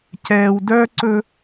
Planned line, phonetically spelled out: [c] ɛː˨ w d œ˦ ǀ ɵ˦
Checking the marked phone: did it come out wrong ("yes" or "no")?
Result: no